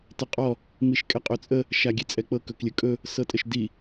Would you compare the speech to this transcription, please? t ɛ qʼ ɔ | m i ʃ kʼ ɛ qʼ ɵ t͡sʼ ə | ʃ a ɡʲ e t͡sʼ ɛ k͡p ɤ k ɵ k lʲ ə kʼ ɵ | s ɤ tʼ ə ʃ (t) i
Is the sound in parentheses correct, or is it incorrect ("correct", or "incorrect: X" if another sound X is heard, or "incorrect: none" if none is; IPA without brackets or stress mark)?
incorrect: d